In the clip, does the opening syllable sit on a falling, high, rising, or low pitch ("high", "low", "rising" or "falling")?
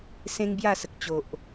high